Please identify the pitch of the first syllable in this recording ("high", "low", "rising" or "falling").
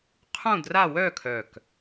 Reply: falling